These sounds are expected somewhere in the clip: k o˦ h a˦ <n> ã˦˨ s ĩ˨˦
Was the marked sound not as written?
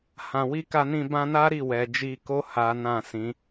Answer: no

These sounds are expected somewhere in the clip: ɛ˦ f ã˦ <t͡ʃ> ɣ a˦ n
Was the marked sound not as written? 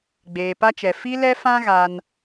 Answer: yes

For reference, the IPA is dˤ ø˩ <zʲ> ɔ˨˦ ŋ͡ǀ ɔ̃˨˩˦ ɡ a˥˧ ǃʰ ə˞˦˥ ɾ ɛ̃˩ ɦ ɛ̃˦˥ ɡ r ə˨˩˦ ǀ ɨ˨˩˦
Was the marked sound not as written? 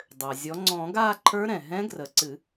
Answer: no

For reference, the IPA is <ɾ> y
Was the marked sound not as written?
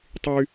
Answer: yes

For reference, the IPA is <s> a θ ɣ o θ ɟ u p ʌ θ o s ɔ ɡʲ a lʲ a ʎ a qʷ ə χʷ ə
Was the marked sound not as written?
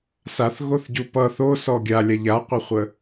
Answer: no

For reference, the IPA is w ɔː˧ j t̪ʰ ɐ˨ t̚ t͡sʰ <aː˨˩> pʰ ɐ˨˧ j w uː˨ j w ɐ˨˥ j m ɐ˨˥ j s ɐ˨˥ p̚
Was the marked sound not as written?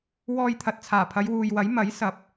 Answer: no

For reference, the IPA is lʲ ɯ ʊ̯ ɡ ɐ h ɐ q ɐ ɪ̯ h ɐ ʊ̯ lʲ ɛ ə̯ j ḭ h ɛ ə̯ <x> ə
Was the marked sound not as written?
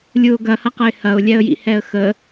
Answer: no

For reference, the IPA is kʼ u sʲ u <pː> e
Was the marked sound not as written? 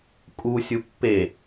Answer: no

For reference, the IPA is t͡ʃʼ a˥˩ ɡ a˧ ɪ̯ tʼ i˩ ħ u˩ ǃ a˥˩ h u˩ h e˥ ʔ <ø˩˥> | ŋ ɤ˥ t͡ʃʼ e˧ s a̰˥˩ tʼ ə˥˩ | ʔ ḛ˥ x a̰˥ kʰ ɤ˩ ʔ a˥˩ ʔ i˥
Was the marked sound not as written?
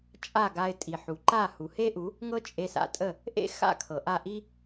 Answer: yes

